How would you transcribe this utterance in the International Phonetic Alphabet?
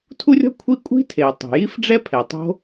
tʰ u˥ rʲ ɔ̤˥ kʷʰ i˥ kʷʼ i̤˥ tʰ e˩ o̯ tˤ o̤˩ j i˥ f ɖ͡ʐ ɛ˥ pʰ ɛ˩ tˤ o̤˥

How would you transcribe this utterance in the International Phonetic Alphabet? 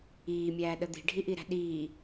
iː mʲ æː ɗ ə d̪ i̤ ɖʱ i ʔ i ɾ æ̤ ɗ iː

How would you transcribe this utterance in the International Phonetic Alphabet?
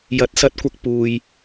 j ɐ˨˥ t̚ s ɐ˧ t̚ kʷ ɐ˧ k̚ p uː˨ j

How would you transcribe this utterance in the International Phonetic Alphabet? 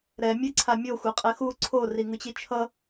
ɾ ɛ mʲ e ǀʰ a mʲ o xʷ e qʼ ɛ x u ǀʰ o r i ŋ ɯ t͡ɕ i t͡ʃʰ ʌ

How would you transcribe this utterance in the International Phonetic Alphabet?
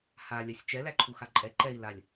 h a lʲ a sʲ t͡ʃ ɛ l æ ǃʰ u x a ǃʼ ɛ ǃ ɛ i̯ l a lʲ

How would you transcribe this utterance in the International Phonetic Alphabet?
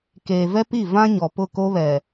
k eː˨ v ɛ˦ p i˦˨ v ã˦ ɲ ɔ˨ p ʊ˦˨ k o˦ β ɛ˨

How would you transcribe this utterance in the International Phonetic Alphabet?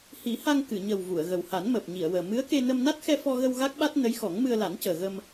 h i˨˩˦ h a˧ ŋ k ɨ˨˩˨ ɲ ə˨˩ w v u˨˩˨ ə̯ ɣ ə˨˩ w h a˨˩˦ n m əː˨˩ p̚ ɲ i˨˩˨ ə̯ w əː˨˩ m ɨ˧˥ ə̯ k e˧ n ə˧ m n a˦˥ t̚ x ɛ˧ f ɔ˧ ɣ ə˧ w ɣ a˦˥ k̚ ɓ a˦˥ t̚ n ə˧˥ j x ɔ˨˩˦ ŋ m ɨ˧ ə̯ l a˨˩˦ n c əː˨˩ ɣ ə˧ m

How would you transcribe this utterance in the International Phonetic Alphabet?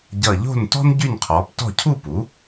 ɟ ʌ˧˩ ʎ o̤˥˩ n t ɔ̤˥ n ɟ y˥˩ n qʰ ɔː˩˥ p t ɔ̤˥˩ cʰ u˥˩ p u˩˥

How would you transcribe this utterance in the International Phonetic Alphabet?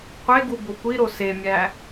qʷ e ɡ u b o kʷ i ɾ o s e mʲ æ

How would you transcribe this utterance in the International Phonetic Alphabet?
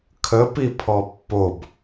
kʰ ə p i pʰ ɔ pː o b

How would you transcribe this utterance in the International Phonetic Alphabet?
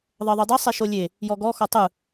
ðˤ ɤ ðˤ ɯ dˤ ɛ sˤ e ʃ o lʲ e | j ɔ ɡ ɔ x ɔ tˤ ɯ

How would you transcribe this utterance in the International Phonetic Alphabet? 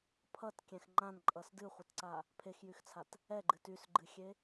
pʰ ʌ t kʲ ɛ̃ x ŋ͡ǃ ã n ǃʼ ʌ s d ɨ χʷ ʌ t ǀ a | pʰ e x j y x t͡sʰ a t | ɛ ɡ͡ǃ ɨ t y s ɡ͡ǃ ɨ xʲ e

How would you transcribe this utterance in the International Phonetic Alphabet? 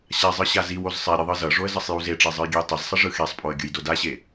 ɕ a zˤ ɯ ɕ a z i w o z sˤ ɛ ɾʲ ɯ ðˤ ɯ z ʌ ʐ o ə̯ z ʌ sˤ j u z e ʈ͡ʂ e zˤ ɯ j ɡʲ ɛ j tˤ ɛ z sˤ ʌ ʐ ɯ x e sˤ pʼ o ə̯ ɡʲ ɯ j d o d a ɕ e

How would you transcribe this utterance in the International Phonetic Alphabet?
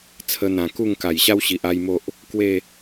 t͡sʰ ə˧ n̪ ã˨˩ k u˥˧ ŋ k a˨˩ j ɕ a˦ w ɕ i˨ ʔ a˦ j m o˦ ʔ | k w e˥˧

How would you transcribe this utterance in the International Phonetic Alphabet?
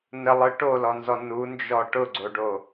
n ə lˠ ɯ ʈ o l ɔ n z ɔ n u n d͡ʒ ɔ ʈ ʊ ɡ͡ǀ o ɖ o

